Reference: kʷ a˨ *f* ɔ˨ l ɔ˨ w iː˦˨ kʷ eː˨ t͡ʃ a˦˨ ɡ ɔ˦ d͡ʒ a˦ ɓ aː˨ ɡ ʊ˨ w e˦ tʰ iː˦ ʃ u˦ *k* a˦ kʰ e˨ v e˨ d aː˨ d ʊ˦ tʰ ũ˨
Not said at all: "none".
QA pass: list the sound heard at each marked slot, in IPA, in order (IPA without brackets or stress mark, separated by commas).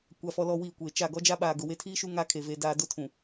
f, ŋ